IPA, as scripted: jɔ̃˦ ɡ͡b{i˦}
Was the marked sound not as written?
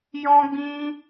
yes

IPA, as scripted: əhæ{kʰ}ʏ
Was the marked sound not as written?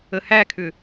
no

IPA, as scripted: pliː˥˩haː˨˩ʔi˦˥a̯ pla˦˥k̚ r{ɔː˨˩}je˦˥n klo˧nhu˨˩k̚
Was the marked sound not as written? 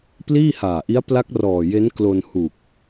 no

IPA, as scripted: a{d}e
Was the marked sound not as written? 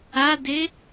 no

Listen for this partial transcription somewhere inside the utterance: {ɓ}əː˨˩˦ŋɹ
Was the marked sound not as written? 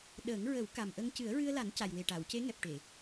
yes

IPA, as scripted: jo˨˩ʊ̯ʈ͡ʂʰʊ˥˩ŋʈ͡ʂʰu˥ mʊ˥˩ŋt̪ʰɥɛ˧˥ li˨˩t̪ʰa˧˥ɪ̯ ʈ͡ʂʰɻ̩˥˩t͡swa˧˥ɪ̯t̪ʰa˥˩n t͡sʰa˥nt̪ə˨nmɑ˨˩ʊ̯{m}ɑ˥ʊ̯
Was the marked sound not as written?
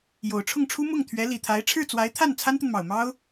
no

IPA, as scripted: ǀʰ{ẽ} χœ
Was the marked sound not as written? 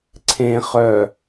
no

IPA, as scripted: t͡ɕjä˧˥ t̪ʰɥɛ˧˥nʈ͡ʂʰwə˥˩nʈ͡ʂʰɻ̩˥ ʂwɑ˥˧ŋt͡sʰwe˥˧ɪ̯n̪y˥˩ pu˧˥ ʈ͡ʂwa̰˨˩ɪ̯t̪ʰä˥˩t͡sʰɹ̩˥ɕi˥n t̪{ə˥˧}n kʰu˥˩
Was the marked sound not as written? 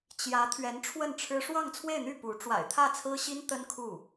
yes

